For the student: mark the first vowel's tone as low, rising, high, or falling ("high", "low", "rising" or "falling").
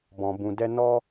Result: low